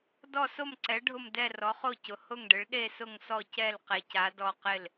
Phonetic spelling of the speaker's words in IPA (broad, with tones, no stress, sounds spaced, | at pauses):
d ɔ˦˨ s o˦˨ m ǀ ɛ˨˦ ɖʱ ʊ˦˨ m d ɛ˦˨ r ɔ˨˦ χ o˦˨ c ʊ˨˦ h ʊ˦˨ ŋ ɖ ɪ˨˦ ɭ ɗ e˦˨ s ʊ˦˨ ŋ s ɔ˦˨ c ɛ˦˨ l q e˨˦ c a˨˦ d ɔ˦˨ q ɪ˦˨ l